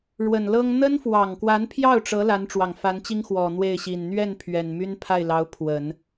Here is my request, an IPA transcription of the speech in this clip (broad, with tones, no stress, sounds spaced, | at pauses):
ɻ w ə˨˩ n l ɤ˥ ŋ n̪ ə˥ n f w ɑ˨˩ ŋ k w a˧˥ n pʰ j ɑ˥˩ ʊ̯ ʈ͡ʂ ɤ˧˥ l a˧˥ n ʈ͡ʂ w ɑ˨˩ ŋ f a˧˥ n t͡ɕ i˥ ŋ x w ɔ˨˩ n̪ w e˥˩ ɪ̯ ɕ i˨˩ n n̪ ɥ ɛ˥˩ n pʰ ɥ ɛ˨˩ n m y˥ n pʰ a˥˩ ɪ̯ l ɑ˧˥ ʊ̯ pʰ w ə˨˩˦ n